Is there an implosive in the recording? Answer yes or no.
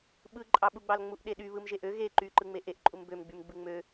yes